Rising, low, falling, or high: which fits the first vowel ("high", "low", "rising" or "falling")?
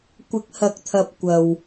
rising